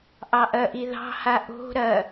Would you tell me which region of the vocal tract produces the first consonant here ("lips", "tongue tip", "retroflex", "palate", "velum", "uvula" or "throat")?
throat